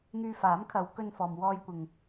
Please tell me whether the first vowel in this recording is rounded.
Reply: yes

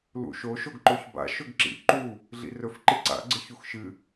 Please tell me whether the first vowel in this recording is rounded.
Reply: yes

